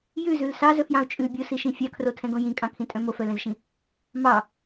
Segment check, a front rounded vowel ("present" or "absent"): present